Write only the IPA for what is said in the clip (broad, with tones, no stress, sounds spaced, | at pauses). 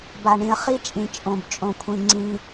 b a˨ ɳ ĩ˨ ə̯ χ i˦ t͡ʃʼ ĩ˨ t͡ʃʼ õ˨ b t͡ʃʼ õ˨ kʷʰ ĩ˨ ŋ͡ǀ ĩ˦